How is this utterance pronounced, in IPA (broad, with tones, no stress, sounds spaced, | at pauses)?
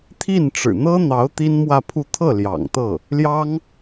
t̪ʰ i˥˩ n ʈ͡ʂ ɻ̩˨˩ n̪ ɤ˥ n̪ ɑ˧˥ ʊ̯ t̪ i˥ n m w ä˥˧ pʰ u˥˧ t̪ʰ ɤ˥˩ l j ɑ̰˨˩ ŋ t̪ ɤ˥˩ | l j ɑ˥ ŋ